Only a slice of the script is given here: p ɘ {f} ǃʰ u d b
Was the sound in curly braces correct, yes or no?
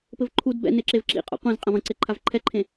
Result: no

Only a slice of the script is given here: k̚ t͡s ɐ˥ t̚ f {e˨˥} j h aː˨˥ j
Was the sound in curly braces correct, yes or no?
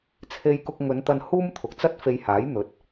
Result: no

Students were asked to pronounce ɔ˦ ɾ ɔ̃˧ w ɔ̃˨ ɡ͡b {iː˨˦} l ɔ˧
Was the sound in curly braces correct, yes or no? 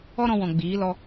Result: yes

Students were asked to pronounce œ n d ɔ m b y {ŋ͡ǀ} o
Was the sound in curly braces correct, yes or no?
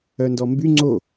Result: yes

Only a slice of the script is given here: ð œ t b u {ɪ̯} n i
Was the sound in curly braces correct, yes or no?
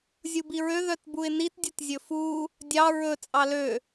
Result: yes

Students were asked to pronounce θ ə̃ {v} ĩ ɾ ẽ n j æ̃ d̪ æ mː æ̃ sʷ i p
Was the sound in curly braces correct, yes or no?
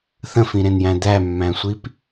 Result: no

